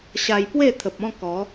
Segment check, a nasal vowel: present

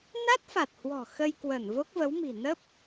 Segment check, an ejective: absent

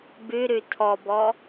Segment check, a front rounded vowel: absent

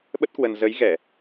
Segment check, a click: absent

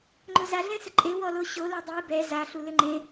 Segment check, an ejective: present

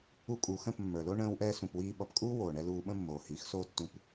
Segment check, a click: absent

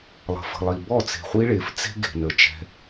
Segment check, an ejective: absent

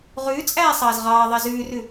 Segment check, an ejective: present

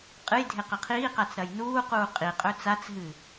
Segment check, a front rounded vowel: absent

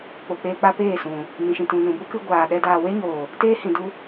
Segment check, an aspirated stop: absent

